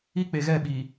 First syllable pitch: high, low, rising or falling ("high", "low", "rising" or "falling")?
high